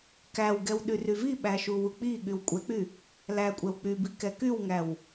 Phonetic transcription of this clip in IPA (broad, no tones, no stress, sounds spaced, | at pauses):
k æ w ɡ ɛ w ɗ y r y v i ɓ æ ʃ u w u k͡p i ɠ y w kʷʼ ɛ k͡p y | l æ kʷʼ ɛ w k͡p y b i k ɛ k y w ŋ æ w